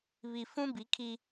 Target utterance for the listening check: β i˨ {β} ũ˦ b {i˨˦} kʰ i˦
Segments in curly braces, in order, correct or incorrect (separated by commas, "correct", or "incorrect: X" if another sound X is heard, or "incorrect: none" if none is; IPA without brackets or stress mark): incorrect: f, correct